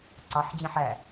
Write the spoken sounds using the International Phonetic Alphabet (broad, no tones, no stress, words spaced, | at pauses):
ǀɑħd͡ʑẽħ æ